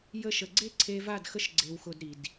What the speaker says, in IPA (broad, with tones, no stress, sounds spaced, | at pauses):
j ə˧ ʃ ə˨ ɡ͡ǀ e˦ ǀʰ e˧ v a˦˨ d x ə˦ ʃ ɡ͡ǀ e˧ w x ʊ˧ d ɾ i˨ d